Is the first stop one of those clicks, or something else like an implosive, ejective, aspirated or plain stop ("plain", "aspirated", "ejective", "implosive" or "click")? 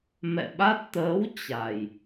implosive